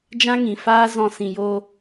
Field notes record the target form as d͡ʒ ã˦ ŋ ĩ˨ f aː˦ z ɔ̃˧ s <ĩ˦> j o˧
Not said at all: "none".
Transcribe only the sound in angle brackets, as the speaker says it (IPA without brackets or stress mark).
ĩ˨